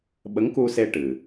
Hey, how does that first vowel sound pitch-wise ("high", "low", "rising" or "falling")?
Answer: rising